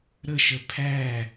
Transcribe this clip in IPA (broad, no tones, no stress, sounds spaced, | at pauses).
ɾ ə ʃ ə pʰ æ